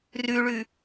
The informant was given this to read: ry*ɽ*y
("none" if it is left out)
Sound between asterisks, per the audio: ɭ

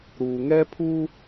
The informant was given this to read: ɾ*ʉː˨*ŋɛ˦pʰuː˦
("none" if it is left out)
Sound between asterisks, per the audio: uː˨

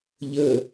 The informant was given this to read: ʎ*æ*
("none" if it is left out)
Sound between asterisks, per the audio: ə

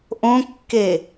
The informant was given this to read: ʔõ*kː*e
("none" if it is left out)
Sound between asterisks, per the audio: kː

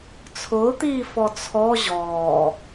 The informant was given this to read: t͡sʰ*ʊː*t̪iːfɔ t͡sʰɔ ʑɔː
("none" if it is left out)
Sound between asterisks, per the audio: ʊː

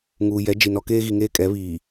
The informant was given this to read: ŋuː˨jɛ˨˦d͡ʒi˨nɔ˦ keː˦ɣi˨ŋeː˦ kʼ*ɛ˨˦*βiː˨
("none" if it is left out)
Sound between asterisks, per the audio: ɛ˨˦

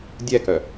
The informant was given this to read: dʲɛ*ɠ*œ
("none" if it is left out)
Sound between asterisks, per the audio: k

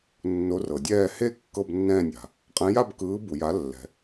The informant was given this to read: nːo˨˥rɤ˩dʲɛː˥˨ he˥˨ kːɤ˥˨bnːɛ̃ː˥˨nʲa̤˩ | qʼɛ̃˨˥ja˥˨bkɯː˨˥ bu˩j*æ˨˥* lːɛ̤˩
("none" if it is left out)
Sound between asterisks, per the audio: a˨˥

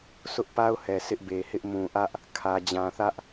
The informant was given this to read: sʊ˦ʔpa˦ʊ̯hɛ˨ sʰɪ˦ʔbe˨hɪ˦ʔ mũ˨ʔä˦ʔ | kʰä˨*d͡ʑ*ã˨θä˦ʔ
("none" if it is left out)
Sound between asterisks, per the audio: d͡ʑ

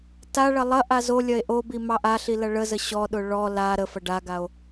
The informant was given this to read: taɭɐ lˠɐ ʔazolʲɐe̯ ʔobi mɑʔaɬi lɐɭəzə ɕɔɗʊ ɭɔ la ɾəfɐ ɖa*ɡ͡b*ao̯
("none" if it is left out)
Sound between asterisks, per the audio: ɡ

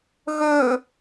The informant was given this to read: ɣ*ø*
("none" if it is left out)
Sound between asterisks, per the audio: ø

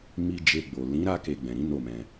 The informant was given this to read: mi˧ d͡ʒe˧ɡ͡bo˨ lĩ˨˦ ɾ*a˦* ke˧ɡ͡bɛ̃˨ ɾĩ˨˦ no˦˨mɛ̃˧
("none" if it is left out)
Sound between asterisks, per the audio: a˦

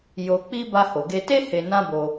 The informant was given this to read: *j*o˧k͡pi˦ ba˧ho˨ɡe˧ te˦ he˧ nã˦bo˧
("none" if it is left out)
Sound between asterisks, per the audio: j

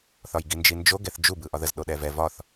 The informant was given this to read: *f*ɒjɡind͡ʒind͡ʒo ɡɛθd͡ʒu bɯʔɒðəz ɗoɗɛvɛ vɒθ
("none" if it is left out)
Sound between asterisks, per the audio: θ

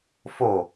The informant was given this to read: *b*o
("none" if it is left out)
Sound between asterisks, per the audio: f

